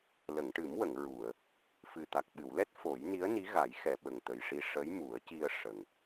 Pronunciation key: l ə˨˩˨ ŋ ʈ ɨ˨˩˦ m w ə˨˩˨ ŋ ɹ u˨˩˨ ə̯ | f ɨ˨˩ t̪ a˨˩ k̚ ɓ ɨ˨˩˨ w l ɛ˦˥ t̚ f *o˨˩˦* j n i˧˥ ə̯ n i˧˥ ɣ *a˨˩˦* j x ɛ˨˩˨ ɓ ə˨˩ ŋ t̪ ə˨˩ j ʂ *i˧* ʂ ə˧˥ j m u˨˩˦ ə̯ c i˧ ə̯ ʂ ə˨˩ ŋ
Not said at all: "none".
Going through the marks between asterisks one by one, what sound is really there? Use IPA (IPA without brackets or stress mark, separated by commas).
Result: o˨˩˦, a˨˩˦, i˧